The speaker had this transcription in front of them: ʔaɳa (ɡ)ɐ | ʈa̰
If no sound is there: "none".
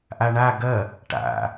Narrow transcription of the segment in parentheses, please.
ɡ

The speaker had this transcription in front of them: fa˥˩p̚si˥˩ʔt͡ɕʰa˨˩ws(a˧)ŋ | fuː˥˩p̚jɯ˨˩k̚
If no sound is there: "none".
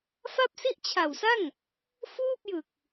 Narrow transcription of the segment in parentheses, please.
a˥˩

